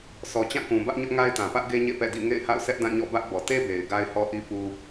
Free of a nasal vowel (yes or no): no